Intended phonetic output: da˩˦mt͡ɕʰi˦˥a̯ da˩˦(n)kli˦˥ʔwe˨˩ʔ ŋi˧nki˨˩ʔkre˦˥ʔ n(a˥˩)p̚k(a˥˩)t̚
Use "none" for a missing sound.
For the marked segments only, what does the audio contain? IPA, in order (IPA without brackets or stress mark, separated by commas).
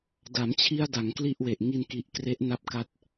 ŋ, a˥˩, a˥˩